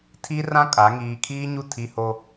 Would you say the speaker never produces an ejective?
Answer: no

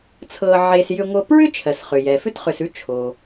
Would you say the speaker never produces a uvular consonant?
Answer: no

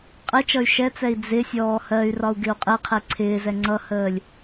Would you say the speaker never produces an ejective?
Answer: no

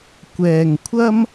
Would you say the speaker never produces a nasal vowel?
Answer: yes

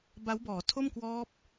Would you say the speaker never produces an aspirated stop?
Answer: no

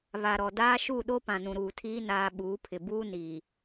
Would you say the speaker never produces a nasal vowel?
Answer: no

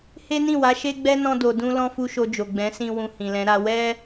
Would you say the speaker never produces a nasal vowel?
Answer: no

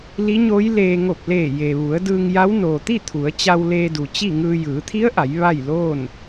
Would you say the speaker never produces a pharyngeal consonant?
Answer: yes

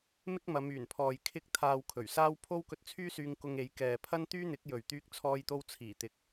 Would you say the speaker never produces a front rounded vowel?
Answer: no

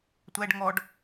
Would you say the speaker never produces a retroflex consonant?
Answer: no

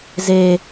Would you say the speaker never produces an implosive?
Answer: yes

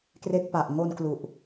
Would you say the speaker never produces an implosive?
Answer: yes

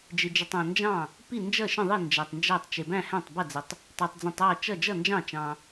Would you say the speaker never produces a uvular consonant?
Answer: yes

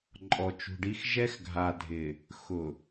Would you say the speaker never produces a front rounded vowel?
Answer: yes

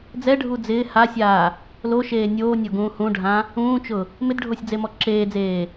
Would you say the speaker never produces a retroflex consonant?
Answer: no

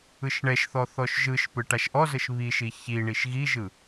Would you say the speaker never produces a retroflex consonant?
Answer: no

